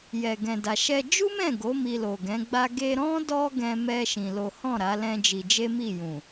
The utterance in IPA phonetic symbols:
j ɛ˨ ɡ ɛ̃˨ d a˨ ʃ ɛ˧ d͡ʒ u˦ m ɛ̃˦˨ ɡ o˨˦ m i˧ l o˨ ɡ ɛ̃˨˦ ɡ͡b a˦ ɡ e˧ ɾ ɔ̃˦ d ɔ˦ ɡ ɛ̃˧ m ɛ˧ ʃ ĩ˧ l o˦ h ɔ̃˦˨ ɾ a˨˦ l ɛ̃˦ d͡ʒ i˧ d͡ʒ e˦ m i˦˨ j ũ˨

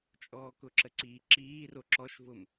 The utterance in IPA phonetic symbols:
t͡ʃʼ ɔː k ʊ ǁ ə ǀ i ǁ iː r o ǁ ɔ ʃ v ʊ m

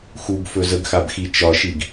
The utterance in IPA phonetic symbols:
x u ɡ f ɵ z ə ɡ x a b x i t͡ʃ ɒ ʃ i ɡ

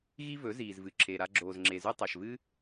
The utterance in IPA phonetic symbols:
ɣ i˦ v ɵ˨˦ z iː˨ z v ɨ˨ ǁʰ e˨ ɾ a˧ ɡ͡ǁ oː˨ z ŋ͡ǁ e˨ z ʉ˧ tˤ a˨ ʃ v ɨː˦

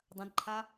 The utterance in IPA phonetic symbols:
dˤ ɐ̃ d ǃʰ a

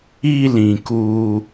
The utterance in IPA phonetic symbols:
i˧ l ĩ˨ k u˧

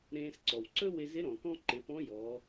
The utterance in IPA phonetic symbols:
ɾ ẽː˧ s ǀ ɔ˩ w ǀ ɵ˥ w ɪ˧ z ɪ˧˥ ɾ ɔ̃˩ k ɔ̃˥ ǃ ɪ˩˧ p ɔ̃˧˥ j ɔ˩˧

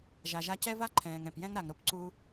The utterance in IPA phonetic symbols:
ʒ a˨ ʒ a˧ c ɛ˦ v a˦ ǃʰ ɛ̃ː˨ ŋ ɛ̃˨ p j ɛ̃˦ ŋ ɾ a˨ ŋ ɾ o˦ p ǀ u˧

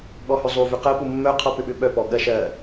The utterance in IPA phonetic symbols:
ɠ ɔ h ʏ zˤ u v ʏ q ɜ p u mː œ qʰ ɔ p ʏ ɓ ʏ ɓ œ p ɔ ɠ ɜ ʃ ɜ

